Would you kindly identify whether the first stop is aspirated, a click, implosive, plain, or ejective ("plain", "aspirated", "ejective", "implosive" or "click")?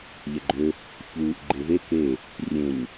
click